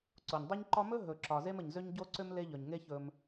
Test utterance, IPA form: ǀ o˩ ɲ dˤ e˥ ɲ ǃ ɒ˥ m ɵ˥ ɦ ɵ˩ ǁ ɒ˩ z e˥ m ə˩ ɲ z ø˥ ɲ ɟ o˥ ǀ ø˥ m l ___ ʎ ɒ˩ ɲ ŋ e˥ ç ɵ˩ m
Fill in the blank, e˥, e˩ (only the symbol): e˥